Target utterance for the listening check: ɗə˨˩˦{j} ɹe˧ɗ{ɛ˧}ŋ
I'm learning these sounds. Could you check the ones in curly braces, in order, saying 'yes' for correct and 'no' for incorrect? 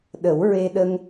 no, no

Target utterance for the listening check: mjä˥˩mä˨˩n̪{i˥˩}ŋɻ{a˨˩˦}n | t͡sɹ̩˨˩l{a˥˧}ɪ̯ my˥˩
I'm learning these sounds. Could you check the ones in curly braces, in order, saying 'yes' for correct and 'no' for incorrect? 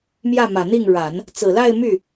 yes, yes, yes

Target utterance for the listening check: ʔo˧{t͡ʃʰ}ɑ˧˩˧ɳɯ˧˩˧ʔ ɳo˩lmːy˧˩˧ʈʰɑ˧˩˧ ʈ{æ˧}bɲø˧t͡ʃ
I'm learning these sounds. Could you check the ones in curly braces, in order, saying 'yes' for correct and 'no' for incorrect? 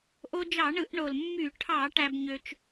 no, yes

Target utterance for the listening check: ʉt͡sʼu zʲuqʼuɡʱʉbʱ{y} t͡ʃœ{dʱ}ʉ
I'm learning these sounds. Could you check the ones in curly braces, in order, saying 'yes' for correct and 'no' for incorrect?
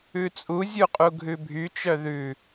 yes, no

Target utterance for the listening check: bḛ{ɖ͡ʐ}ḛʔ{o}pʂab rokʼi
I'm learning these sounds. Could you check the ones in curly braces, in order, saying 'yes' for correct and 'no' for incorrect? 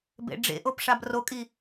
yes, yes

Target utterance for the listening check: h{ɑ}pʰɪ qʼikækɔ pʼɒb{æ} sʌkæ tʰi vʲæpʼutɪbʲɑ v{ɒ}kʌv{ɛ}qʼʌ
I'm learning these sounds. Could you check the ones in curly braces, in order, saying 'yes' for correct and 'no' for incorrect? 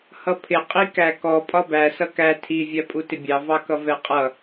no, yes, no, yes

